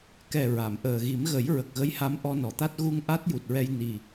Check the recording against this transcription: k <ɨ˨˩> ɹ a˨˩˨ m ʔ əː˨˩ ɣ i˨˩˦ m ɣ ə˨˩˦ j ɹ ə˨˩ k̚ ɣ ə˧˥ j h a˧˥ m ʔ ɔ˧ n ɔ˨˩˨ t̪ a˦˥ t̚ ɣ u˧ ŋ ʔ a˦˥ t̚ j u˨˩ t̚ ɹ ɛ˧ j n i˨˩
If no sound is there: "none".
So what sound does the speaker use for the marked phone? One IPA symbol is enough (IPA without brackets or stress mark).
ɛ˨˩